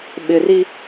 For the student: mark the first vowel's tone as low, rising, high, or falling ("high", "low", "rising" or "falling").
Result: low